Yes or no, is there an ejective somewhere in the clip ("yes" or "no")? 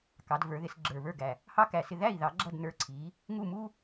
no